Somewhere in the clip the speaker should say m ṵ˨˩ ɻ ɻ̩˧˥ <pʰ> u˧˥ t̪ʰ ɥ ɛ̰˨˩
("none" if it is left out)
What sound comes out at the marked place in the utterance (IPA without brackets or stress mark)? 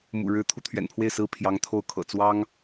t̪ʰ